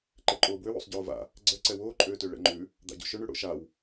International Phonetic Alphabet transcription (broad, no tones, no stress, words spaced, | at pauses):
ǃɛǃʼoːbwøw o̰sˤɟoːva̰ | ɡ͡ǀɛ ǀɛwoːǃʼøːtø ɭɛ̰ŋ͡ǃʉ | d̪a̰ɟo̰ʃøɳ ʉɽo̰ʃaw